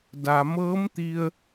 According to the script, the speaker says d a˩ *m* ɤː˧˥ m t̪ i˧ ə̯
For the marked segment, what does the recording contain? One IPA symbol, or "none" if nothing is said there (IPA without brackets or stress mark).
m